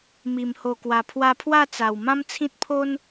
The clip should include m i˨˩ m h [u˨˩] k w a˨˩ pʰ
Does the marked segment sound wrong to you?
yes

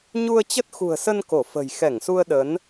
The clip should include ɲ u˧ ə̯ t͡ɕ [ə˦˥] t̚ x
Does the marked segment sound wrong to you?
no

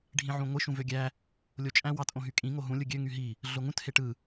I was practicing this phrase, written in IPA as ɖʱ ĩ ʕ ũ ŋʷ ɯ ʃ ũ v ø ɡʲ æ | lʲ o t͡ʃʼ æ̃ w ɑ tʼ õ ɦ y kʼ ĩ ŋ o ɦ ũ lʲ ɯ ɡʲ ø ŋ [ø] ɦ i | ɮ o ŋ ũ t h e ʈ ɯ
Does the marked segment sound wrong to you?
yes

